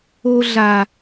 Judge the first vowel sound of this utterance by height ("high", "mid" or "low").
mid